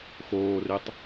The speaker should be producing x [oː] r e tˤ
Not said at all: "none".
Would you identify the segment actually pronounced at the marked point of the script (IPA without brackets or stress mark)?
oː